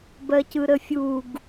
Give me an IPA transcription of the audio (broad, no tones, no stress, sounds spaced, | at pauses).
b ɜ c ɯ ɾ ə fʲ u ɡ